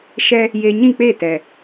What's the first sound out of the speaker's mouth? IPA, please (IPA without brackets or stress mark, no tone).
ʃ